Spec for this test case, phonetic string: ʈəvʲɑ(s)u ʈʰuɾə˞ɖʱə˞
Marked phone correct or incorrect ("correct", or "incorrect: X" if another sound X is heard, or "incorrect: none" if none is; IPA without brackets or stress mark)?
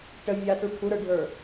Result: correct